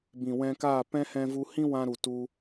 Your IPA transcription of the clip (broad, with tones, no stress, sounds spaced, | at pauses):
b ĩ˨ w ɛ̃˧ k aː˦˨ p ɛ̃˦ h ɛ̃˧ v u˧ h ĩ˦ w ã˧ ɾ u˨ t u˧